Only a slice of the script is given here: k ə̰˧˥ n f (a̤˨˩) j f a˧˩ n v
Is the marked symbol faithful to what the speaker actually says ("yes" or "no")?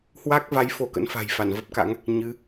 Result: yes